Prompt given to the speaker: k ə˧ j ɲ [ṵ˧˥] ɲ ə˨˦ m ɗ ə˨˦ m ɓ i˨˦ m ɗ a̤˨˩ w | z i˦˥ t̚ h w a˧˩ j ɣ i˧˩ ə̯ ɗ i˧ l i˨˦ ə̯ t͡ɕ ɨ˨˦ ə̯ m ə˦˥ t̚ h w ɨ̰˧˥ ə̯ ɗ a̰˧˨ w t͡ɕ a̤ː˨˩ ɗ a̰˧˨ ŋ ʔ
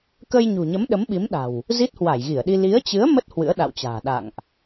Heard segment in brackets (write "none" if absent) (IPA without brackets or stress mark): ṳ˨˩